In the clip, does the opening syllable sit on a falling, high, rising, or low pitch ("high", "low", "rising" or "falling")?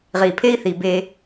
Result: low